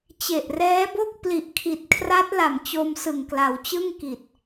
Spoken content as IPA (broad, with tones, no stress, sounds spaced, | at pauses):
t͡ɕ e˨˩ ʔ r ɛː˦˥ b o˥˩ k̚ p l i˨˩ ʔ kʰ i˨˩ t̚ kʰ r a˦˥ t̚ l a˨˩ m t͡ɕ o˧ m s ɯ˨˩ ŋ k l a˩˦ w t͡ɕ ɯ˥˩ ŋ k i˨˩ t̚